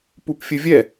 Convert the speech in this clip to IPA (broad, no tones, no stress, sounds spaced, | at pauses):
p u p fʲ ɘ vʲ ɛ